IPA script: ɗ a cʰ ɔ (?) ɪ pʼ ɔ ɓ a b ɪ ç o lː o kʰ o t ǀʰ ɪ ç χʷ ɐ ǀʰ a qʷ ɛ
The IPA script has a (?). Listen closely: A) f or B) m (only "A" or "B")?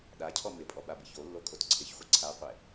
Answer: B